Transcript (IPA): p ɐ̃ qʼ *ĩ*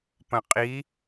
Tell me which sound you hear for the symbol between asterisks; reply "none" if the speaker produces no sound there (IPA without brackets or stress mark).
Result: i